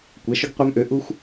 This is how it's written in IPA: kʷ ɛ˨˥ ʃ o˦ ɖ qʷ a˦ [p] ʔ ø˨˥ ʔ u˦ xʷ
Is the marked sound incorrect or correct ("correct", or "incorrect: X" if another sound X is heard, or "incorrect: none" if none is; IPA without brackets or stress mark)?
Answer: incorrect: m